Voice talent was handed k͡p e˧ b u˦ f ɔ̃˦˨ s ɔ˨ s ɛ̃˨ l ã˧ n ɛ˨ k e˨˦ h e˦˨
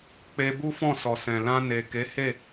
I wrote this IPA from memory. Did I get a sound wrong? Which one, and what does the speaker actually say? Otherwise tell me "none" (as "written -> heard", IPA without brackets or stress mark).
ɛ˨ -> e˨